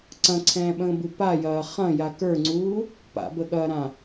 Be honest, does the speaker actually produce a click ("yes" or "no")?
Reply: yes